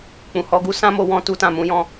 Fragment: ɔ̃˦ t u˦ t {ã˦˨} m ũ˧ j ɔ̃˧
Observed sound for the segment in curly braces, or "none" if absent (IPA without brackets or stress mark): ã˦˨